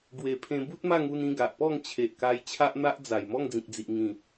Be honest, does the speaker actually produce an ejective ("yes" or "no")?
no